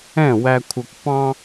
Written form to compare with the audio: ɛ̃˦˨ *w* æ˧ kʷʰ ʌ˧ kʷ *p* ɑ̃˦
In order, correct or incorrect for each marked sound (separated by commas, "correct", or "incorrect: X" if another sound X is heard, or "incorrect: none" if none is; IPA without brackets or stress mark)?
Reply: correct, correct